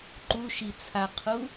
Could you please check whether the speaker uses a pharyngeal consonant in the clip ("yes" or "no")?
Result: no